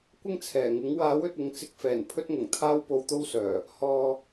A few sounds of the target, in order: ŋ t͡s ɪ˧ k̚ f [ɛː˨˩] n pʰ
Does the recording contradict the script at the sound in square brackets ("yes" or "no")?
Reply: no